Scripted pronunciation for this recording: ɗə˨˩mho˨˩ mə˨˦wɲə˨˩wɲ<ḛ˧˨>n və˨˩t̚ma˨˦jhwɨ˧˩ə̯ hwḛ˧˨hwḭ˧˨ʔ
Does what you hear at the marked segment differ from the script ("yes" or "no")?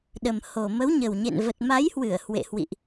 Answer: no